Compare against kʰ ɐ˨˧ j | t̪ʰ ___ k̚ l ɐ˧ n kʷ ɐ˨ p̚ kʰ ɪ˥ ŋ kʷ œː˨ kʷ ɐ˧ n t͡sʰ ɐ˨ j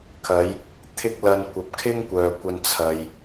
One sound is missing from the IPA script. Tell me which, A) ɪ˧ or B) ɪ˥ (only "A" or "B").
B